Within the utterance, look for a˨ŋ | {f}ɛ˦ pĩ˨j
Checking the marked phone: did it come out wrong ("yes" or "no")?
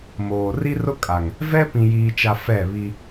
yes